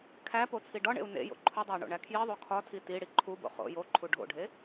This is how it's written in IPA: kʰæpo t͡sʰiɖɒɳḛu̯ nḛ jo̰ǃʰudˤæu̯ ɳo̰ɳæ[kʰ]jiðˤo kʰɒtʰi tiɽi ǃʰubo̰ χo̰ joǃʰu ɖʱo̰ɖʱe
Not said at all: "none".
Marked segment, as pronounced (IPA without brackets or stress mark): kʰ